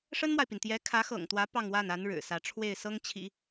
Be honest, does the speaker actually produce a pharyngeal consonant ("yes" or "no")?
no